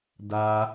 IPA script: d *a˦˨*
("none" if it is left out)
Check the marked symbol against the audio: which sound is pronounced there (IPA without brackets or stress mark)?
a˨